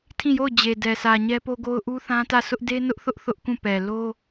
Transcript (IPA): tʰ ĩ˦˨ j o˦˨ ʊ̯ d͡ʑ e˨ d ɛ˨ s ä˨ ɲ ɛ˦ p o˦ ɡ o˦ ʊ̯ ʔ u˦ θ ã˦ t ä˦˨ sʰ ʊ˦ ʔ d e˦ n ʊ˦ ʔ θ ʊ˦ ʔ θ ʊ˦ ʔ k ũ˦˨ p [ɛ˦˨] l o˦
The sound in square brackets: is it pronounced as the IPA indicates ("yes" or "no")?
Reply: no